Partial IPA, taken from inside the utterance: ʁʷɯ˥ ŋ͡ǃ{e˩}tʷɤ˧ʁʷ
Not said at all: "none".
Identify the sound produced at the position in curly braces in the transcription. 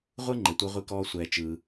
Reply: e˩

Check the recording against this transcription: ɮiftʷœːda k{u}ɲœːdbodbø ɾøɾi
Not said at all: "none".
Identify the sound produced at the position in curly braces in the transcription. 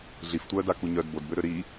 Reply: u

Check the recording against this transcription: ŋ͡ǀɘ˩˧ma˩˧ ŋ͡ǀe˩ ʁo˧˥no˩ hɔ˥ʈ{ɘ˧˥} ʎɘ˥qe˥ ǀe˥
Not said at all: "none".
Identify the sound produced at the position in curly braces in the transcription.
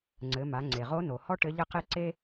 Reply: ɘ˧˥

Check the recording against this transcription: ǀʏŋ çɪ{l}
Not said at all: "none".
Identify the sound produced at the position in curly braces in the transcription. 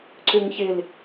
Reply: l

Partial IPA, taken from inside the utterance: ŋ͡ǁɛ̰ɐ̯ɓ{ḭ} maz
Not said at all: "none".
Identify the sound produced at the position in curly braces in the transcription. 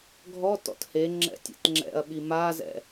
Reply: i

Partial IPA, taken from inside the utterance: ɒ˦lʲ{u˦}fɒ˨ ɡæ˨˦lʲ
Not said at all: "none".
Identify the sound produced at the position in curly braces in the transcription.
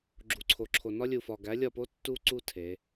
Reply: u˨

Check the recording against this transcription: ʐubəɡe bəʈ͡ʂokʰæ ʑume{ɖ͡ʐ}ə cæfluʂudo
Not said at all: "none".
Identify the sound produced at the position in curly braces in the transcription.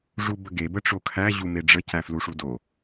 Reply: ɖ͡ʐ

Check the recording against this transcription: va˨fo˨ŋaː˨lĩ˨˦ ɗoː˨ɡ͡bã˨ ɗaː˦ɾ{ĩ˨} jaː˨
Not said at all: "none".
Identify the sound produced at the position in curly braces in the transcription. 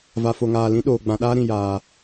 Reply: ĩ˨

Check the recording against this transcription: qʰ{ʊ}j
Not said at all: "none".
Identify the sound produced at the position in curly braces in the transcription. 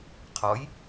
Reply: ɔ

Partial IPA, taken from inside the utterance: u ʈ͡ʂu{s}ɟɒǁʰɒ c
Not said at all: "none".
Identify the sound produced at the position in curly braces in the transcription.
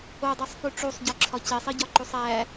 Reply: sˤ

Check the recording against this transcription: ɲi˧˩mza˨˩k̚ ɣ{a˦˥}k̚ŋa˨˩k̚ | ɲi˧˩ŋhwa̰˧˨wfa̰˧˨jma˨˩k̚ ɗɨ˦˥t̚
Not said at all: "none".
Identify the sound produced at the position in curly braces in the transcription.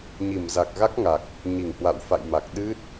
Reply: a˦˥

